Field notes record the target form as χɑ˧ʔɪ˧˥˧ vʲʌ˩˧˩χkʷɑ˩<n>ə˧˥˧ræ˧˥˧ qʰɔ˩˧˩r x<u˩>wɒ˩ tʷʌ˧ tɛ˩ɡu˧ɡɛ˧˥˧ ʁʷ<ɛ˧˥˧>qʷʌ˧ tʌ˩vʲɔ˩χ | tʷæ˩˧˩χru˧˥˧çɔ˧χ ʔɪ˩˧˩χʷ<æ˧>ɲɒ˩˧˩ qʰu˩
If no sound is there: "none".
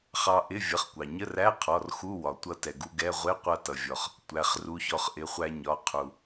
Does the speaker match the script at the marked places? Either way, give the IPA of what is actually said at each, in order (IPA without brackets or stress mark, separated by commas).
ɲ, u˧˥˧, ɪ˧˥˧, æ˧